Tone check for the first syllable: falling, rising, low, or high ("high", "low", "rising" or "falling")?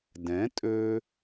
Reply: rising